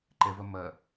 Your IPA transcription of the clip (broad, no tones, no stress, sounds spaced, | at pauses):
ǃ ɛ v ɐ m ɐ